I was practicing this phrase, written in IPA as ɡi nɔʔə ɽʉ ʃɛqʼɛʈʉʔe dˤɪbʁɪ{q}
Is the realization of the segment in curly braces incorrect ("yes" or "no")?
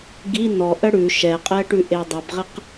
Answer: no